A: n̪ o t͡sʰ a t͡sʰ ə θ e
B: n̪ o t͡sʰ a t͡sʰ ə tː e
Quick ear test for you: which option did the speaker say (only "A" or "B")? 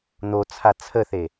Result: A